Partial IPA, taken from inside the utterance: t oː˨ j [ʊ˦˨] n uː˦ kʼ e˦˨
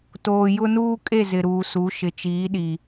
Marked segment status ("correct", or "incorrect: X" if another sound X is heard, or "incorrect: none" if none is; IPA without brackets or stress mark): incorrect: ʊ˦